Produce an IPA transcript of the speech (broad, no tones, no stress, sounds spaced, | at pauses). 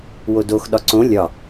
w o d o x ɗ ɒ ǀ õ lʲ ɒ